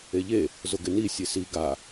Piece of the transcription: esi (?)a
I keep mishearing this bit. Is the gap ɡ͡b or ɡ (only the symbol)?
ɡ